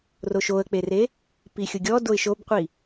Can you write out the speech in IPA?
roʃoə̯k͡pere | pixʲʊɡʲɔ doɪ̯ʃobqʷi

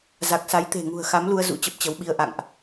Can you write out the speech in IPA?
za˨˩k̚sa˨˦jt̪e̤˨˩ŋṳ˨˩ə̯ xa˨˦mlu˧ə̯ zṵ˧˥ t͡ɕə˦˥p̚t͡ɕə˨˦wɓi˧ə̯ ʔa̰˧˨ŋʔ

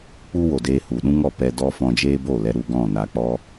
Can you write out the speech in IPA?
k͡pu˦wo˨deː˧ hu˨ɗũ˦ŋɔ˦˨pɛ˧ dɔ˦ fɔ̃˧d͡ʒeː˦bo˦˨lɛ˧ ɾu˧ɡɔ̃˦˨na˧ k͡pɔ˦

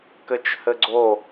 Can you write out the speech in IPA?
kɘt͡ʃhɘɡ͡ǀo

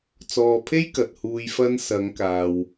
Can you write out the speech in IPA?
t͡sɔː˨pʰe˥j kɐ˨t̚huː˧j fɐ˧nsɐ˨˧ŋkaː˨w

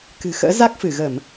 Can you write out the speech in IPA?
kɨ̤˨˩xə̰ː˧˥ za˦˥k̚fɨ˧˩ɣə˧˩˨m

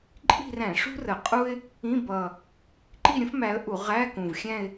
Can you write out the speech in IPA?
ǃʼi̤˥˧ræ̃˧˩˧ʂṳ˥r ə˨˩qʼu˥ɪ̯ | ĩ˧˥˧bʌ˨˩ | ǃi˥˧ɾʲə̃˥fmæ˨˦ə̯ʔu˧˩˧ ʁæ˧˥˧ kũ˨˩vxʲæ̃˥˧ɪ̯

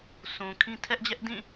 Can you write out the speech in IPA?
sũ˨kʰĩ˦ tʰɛ˦ʔd͡ʑɛ˦ʔdĩ˦˨

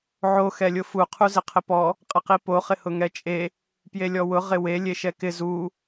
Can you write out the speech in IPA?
ʕo xɛlʲʊfu qʰuzɪqʰɪpɔ | qʼɪqipo χɪhʊŋɛt͡ʃʼe | pjelʲɔwʊ ʁɪwe lʲeʃɛkɪ zu

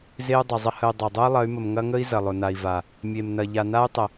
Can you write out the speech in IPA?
ze˦u̯ dˤɐ˨zˤə˦ hə˨y̯ dˤa˨dˤu˦i̯lˠɐ˨˦y̯mə˨m ŋɐ˦ŋə˦i̯ zɐ˨lˠʊ˨na˨i̯va˨ | mʲe˨mnɐ˨ ʎa˨na˦y̯tˤə˨

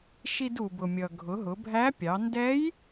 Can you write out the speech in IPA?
ʃi˧du˩bʊ˩mʲʌ˩ ɡʱʊ˩˧ɦʊ˩˧bʱæ˧˥pʲɑ˩˧ ndɛ˧˥j

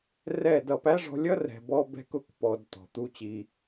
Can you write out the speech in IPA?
rɛ˦˨dʌ˧p æ˦ʐɔ̤˧lʲʌ˦ rɛ̤˨bɔ˧ bɛ̤˧kʊ˧k pɔ˧dtɔ̤˨ t̪u˧t͡ɕi˧

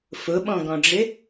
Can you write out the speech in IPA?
fʊɓɔ̃ɡɔ̃ɖ͡ʐɪ

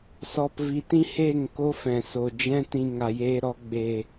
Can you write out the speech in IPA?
sɔ˨pvi˨tĩ˦ he˦˨ŋ ko˦fɛ̃˨ so˨ d͡ʒɛ̃˧ tĩ˨ ŋa˨jeː˧ɾɔ˧ ɡ͡be˨

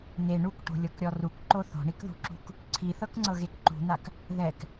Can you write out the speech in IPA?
ne ɳukʈo̤lʲɤkɾʲɔ rukǃo θo̤ɳikðṳǁṳk | ǀʰiθɤkŋ͡ǀɤɣek ǃṳn̪ak | ðɛk

